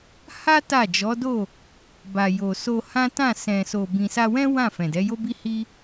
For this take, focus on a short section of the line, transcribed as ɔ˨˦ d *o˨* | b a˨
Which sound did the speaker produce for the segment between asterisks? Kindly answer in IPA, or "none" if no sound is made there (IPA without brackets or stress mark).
o˦˨